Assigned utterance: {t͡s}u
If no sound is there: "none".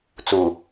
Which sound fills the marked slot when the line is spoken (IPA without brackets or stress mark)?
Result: t͡s